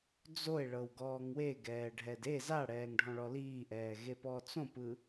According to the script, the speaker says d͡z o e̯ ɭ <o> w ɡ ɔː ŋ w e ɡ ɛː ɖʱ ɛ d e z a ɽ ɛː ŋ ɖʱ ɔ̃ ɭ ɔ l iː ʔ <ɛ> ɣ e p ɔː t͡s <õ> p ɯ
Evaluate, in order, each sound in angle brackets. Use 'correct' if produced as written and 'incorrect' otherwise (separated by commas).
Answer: incorrect, incorrect, correct